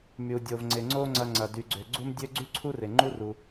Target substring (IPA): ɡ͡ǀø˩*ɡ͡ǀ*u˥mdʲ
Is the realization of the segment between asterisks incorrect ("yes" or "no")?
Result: no